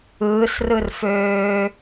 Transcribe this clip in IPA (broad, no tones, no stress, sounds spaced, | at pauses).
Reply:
ɯː s r ɯ r f øː